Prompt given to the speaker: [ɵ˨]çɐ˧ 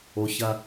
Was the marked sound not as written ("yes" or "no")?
yes